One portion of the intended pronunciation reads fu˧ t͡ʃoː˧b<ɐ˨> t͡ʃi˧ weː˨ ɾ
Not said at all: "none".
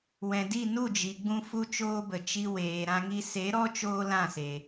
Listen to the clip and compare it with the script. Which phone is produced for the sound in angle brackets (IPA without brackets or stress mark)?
ə˨